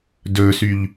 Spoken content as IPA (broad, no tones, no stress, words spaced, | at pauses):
dɵːsyʎ